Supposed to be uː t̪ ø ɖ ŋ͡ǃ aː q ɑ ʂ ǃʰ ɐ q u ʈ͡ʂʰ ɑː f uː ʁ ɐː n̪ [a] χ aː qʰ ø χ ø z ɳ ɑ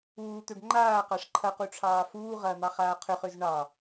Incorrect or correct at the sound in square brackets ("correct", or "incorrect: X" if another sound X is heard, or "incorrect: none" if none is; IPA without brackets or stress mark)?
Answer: incorrect: ɑ